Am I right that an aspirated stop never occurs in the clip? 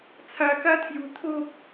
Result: no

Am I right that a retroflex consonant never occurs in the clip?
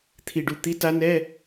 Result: no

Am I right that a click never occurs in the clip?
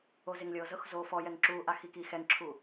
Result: no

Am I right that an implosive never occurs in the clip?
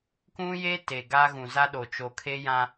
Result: no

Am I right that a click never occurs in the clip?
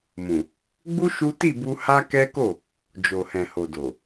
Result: yes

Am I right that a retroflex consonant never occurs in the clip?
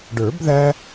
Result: no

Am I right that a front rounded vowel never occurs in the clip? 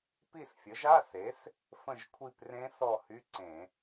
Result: no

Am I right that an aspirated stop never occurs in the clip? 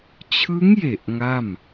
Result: no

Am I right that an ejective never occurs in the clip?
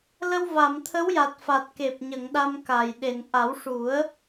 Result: yes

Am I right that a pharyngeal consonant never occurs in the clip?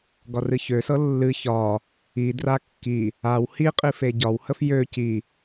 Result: yes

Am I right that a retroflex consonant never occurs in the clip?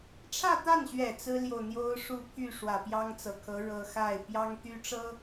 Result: no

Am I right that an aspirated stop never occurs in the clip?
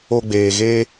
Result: yes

